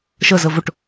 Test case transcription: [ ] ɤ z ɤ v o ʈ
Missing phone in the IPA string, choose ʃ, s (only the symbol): ʃ